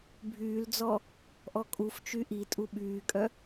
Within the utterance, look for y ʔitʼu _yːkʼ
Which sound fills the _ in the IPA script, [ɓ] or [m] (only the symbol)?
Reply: ɓ